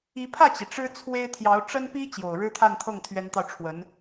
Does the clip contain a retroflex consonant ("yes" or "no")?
yes